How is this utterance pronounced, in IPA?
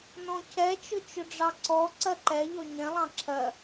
n ɔ̃ cʰ ɛ t͡ʃ ʊ t͡ʃ ʊ ɖ͡ʐ ɑ ǀ ɔ ǀ ɜ ǃ ɛ ʎ ɔ ɲ ɛ̃ lˠ ɑ̃ ǁʰ ɜ

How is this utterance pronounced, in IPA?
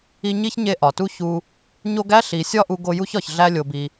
i˦ ɲ i˥ ç ɲ e˦ ʔ ɒ˩ t u˥ ç u˦ | ɲ o˦ ɡ æ˥ ɬ i˨ sʲ ɒ˥ ʔ u˦ ɡ o˦ j u˥ ç ɒ˨ ç ɮ æ˦ lʲ o˨ b i˨

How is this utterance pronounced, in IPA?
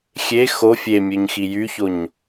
xʲ e x o fʲ e mʲ ø ɲ x i j y ç o ɲ

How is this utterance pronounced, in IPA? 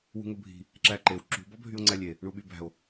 w ṳ ŋ ɵ bʱ i̤ | ǁ æ ǃ e w ǁ ṳ b ɔ bʱ y o̯ ŋ͡ǀ æ lʲ e | ɳ u ɓ y b æ̤ o̯

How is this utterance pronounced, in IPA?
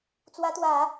t͡s w ä˧˥ t̪ w ä˨˩˦

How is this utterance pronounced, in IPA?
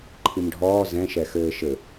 ǃʰ i m ɖʱ ɔː z ɛ̃ ʃ ɛ x ɘː ʃ ɘ

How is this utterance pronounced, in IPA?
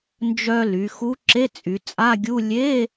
n d͡ʒ œ˧ l y˩˧ x u˧˥ ǁ e˧˥˧ t͡sʼ y˩˧ t͡sʼ a˧˥˧ ɡʲ u˧˥˧ lʲ e˧˥˧

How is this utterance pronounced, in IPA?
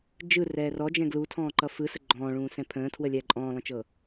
d͡ʒ ɯ r ɛː r ɔ d͡ʒ ɛ̃ ɡ l u tʰ ɔ̃ː ǃ ʌ f ɯ s ə ɡ͡ǃ ɔ̃ː ɭ ũː s ɛ̃ pʰ ə̃ː tʰ w ə lʲ ɛː ǃʼ ɔ̃ː lˠ ə̃ t͡ʃ ɤ

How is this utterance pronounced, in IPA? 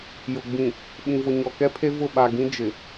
j ʊ˨ ɡ͡b ĩ˨ | ɓ ĩ˨ v ʊ˨ ɲ ɔ˨ k ɛ˦ pʰ e˦ v ʊ˦˨ ɓ a˨ ɡ ĩ˦ d͡ʒ ɪ˨

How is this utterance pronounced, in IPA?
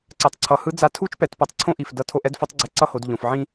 ǀ ɛ˩ tˤ ǀʰ ʌ˩˧ h ɯ˧˥ d͡z a˧˥ tʰ u˥ t͡ʃ p ɛ˩˧ t p ʌ˩˧ tˤ ǀʰ õ˥ ʔ i˩ f d ʌ˧ tʰ o˧ ʔ ɛ˧˥ d f o˧˥ tˤ ɡ͡ǀ ɛ˧ ǀ ʌ˥ h o˩˧ d ʎ õ˩ f ʕ ĩ˥

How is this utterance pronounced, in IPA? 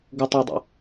ɡ ʊ tˤ ɑ dˤ ɑ̰

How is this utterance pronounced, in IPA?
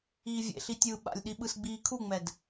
iː vʲ ḛ ɬ i tʲ ɯː ɓ a̰ lʲ ɗ i ɓ ɯ s ɡ͡b iː kʰ u ŋ͡m ɛ d

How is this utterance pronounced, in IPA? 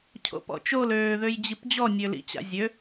cʰ o̰ p ɔ̰ t͡ʃ o l øː ð ø j d͡ʑ i p d͡ʑ ɔ nʲ ø l ḭ t͡ɕ a̰ zʲ ø

